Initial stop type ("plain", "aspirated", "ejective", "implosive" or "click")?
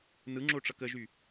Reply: click